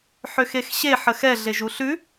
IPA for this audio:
ħ ø x e x ɕ e ħ ə x ɛ ɮ e ʒ u ɬ ʉ

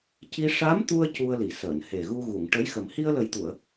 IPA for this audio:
c i˧ ʂ a˧˥ m t̪ u˧ ə̯ c u˧ ə̯ l i˨˩˨ s əː˨˩˨ n h e˨˩ ɣ u˧ ɣ u˨˩˨ ŋ ʈ ə˧˥ j x ə˨˩ m h i˧ ə̯ l ə˨˩ j t̪ u˨˩˨ ə̯

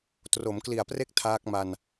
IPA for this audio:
t r o˩˦ m k l i˨˩ a̯ p r e˥˩ k̚ tʰ aː˦˥ k̚ m a˧ n

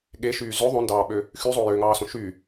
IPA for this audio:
ɠ e ʃ yː z ø ðˤ õ n d ɑː ɓ ø | x y zˤ o j ø ŋ ɑː s õ ʃ y

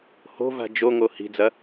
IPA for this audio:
h o̤ v a̤ d͡ʒ o ŋ o h i̤ d͡z ɐ

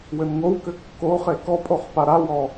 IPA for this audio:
w ɘ n ŋ o w k ɘ kː o χ e k ɔ pʼ o χ p a ɾ a w ɔ

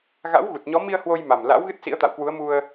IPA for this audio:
ɣ a̰˧˥ w ɣ u˨˩ t̚ ɲ ɔ˨˦ m i˧ ə̯ h w o˧ j m a˨˩ m l a̰˧˥ w ɣ ɨ˦˥ t̚ s ḭ˧˥ ə̯ t̪ a̰˧˨ w k w u˨˦ ə̯ m u˧ ə̯

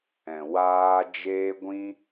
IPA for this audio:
ɛ̃˨ w aː˧ d͡ʒ eː˧ ɡʷ ĩ˧

